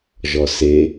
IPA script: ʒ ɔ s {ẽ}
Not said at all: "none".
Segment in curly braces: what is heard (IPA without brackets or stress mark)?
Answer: e